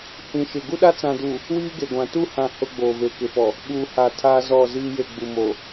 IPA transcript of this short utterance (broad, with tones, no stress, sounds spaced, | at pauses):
h ĩ˨ ʃ ɪ˨ ɡ u˦ ɗ a˦ t͡s ã˨ d u˨ | w iː˦ ɡ e˨ ɡʷ ã˨ t u˦˨ h ã˦˨ h ʊ˦ ɡ͡b oː˨ v e˨ k ɪ˨ f ɔ˨ | ɓ uː˨ h a˨ tʰ aː˦ z ɔ˦˨ z iː˦ j e˦˨ ɡ͡b u˨ m o˨